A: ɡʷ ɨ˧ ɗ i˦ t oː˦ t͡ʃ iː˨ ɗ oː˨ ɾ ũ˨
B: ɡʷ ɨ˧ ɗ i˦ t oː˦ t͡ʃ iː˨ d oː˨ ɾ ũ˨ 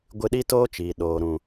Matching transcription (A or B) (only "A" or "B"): A